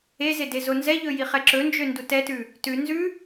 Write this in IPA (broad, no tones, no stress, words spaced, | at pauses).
eze dezonzɛʎɵ jiχɛǁɵnd͡ʒø ndutɛtʉ | tʉ nzʉ